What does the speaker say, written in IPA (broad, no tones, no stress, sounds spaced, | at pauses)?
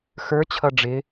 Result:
x ə˞ t͡ɕʰ ʌ ɖ͡ʐ ɪ